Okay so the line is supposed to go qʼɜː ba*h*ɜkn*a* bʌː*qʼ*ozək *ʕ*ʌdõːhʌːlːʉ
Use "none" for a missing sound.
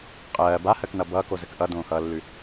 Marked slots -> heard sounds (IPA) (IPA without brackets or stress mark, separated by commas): h, ʌ, k, ʔ